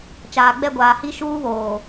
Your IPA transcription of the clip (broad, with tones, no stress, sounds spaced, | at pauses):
t͡ʃ aː˨ ɡ͡b ɛ˦˨ ɡʷ aː˨ h i˦˨ ʃ uː˦ β oː˨